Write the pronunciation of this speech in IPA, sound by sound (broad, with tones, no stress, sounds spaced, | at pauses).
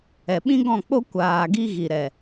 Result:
ɛ˨ ɓ ĩ˦ ɡ ɔ̃˦˨ k͡p o˦ kʷ aː˨ ɡ i˧ ɣ i˨ ɾ ɛ˨